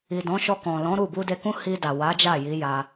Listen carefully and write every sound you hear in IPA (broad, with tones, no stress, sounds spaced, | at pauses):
i˨ d ɔ̃˨˦ ʃ ɔ˧ k ɔ̃˨ l ɔ̃˨˦ ɾ u˦˨ b u˧ d e˧ k ũ˦ h i˧ d a˨ w a˨˦ d͡ʒ a˦˨ j i˨˦ j a˧